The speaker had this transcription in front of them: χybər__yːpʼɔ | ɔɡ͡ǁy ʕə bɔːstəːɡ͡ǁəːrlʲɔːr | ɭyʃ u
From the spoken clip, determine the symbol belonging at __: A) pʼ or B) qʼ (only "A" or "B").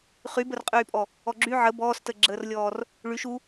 B